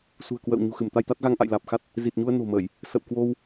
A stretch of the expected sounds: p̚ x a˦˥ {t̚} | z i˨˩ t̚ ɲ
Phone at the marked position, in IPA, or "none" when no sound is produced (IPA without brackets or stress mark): t̚